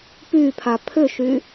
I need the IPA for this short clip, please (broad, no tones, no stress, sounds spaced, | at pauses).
p y pʰ a pʰ ʏ ʃ y